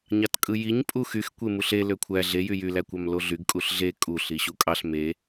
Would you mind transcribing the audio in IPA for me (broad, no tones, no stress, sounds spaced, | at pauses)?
ɲ ɑ t kʼ ɯ j i ɲ pʼ u x y x kʷ e m u ɬ e l ø kʷʰ æ ɮ e j y j y l æ kʷ ɑ m l o ɮ y ɡ kʼ u ɬ ɮ e kʼ u ɬ i ɕ u kʼ ɑ ɬ m e